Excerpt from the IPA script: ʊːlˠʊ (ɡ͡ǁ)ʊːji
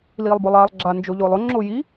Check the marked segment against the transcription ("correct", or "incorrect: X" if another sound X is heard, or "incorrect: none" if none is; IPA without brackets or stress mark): incorrect: ŋ͡ǁ